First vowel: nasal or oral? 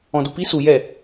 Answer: nasal